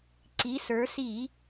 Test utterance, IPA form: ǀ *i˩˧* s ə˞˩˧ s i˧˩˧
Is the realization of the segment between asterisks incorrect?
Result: no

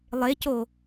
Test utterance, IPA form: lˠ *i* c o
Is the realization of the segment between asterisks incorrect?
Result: yes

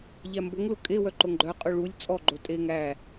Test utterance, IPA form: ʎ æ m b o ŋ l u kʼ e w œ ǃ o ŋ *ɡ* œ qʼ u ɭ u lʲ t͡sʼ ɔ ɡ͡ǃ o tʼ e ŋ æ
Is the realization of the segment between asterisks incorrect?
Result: yes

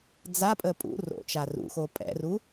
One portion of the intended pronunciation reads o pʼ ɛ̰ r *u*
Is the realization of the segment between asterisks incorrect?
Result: no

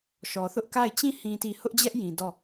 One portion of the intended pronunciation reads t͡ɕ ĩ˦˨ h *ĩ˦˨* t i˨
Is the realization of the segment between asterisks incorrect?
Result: yes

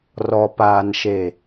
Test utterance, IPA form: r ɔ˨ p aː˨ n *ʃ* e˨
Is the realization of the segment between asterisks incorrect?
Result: no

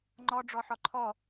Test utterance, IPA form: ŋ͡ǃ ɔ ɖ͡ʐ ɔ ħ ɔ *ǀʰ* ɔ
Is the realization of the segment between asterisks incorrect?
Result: yes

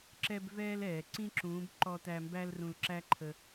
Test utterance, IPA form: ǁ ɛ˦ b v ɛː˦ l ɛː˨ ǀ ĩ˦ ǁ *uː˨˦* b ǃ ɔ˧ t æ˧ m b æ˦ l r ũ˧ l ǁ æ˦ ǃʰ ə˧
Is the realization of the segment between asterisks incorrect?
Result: yes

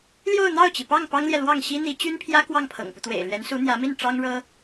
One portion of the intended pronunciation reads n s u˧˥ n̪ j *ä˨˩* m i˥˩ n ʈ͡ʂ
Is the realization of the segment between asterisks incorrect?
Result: yes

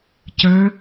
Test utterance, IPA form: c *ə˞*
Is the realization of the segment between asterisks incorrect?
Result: no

